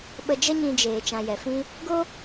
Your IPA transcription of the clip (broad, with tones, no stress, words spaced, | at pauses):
ɓə˧d͡ʒə˦ɲĩ˧d͡ʒeː˨ t͡ʃã˨jɛ˨fĩ˦ | ɡo˦